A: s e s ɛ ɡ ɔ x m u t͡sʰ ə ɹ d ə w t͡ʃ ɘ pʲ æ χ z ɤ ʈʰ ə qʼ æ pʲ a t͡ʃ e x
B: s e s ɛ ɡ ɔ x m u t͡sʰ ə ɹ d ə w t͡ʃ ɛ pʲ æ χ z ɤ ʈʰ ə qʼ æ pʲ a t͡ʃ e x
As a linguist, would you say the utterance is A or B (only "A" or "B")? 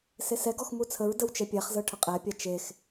B